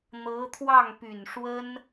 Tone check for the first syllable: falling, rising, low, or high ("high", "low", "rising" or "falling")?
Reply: rising